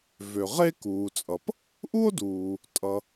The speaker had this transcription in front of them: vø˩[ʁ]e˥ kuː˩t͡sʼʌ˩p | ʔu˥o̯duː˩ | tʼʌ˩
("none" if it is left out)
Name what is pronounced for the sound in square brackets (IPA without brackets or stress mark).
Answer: ʁ